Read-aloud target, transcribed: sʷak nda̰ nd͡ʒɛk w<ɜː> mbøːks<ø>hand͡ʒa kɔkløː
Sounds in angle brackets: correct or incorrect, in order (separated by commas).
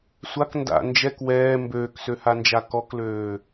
incorrect, correct